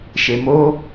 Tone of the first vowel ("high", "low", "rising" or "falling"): low